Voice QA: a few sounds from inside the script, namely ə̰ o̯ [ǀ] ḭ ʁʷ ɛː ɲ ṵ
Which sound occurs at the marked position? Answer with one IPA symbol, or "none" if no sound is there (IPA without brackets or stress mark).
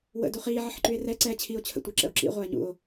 ǁ